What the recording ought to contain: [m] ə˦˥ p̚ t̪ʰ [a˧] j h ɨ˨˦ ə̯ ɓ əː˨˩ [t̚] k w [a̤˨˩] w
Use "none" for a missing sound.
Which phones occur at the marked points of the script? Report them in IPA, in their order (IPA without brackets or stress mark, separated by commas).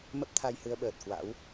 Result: m, a˧, t̚, a̰˧˥